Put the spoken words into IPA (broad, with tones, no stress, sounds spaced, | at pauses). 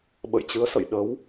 ɓ ə̰˧˨ j t͡ɕ ɨ˨˦ ə̯ s ə̰˧˨ j ɗ ə˨˦ w